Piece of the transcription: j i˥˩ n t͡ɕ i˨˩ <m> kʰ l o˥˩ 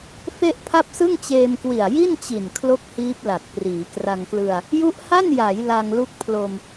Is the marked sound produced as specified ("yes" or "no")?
no